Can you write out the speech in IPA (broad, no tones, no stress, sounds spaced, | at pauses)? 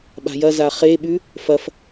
ɓ a̤ j ɐ z a χ e ɓ ʉ | f ɐ f